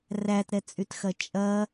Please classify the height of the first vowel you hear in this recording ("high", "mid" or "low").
low